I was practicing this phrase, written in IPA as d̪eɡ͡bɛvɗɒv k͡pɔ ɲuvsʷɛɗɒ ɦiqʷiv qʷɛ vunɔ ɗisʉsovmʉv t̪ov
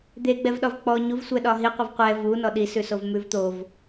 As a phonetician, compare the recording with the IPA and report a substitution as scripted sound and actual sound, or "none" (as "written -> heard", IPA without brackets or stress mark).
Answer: none